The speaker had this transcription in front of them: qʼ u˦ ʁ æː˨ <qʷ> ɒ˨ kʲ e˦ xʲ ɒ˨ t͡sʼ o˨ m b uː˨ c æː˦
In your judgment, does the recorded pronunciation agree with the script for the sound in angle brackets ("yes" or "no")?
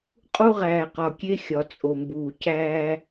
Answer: no